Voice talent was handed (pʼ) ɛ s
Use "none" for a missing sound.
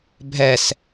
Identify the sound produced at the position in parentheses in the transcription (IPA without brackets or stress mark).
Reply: bʱ